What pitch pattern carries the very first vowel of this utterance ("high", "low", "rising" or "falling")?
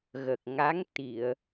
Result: low